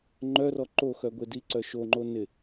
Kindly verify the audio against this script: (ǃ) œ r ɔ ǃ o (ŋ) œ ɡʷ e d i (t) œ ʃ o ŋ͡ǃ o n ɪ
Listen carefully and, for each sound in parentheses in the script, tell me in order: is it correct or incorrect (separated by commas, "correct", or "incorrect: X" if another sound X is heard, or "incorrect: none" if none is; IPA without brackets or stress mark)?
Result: incorrect: ŋ͡ǃ, incorrect: x, incorrect: ǀ